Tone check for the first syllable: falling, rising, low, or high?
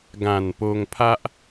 low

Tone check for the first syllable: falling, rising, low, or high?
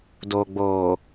low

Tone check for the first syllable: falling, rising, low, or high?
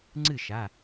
falling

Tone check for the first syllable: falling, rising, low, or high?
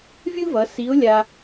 high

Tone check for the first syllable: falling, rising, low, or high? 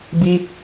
high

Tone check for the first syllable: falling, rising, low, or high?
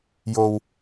low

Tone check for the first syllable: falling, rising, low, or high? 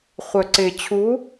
low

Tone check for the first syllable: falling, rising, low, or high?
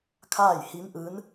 falling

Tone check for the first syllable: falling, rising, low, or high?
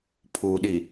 low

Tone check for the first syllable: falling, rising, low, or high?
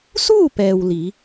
falling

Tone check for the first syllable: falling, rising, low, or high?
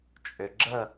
low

